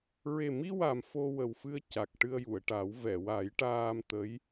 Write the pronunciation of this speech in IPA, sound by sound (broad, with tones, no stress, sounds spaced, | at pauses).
ɹ e˨˩ m i˧ w a˨˩ m f o˧ w ə˨˩ w f ɨ˧ ə̯ c a˨˩ k̚ ʈ ɨ˧ ə̯ j u˨˩˨ ə̯ ʈ a˨˩˦ w v ɛ˨˩˨ w a˨˩˦ j ʈ aː˧ m t̪ ə˧˥ j